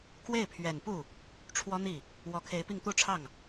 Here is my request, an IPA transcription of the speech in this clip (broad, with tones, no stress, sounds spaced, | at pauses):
k w e˥˩ ɪ̯ pʰ ɥ ɛ˨˩ n p u˥˩ | ʈ͡ʂʰ w ɔ˥ n̪ i˥˩ | w ɔ˧˥ kʰ e˧˥ ɪ̯ p i˥˧ ŋ t̪ u˥˧ ʈ͡ʂʰ ɑ˥˩ ŋ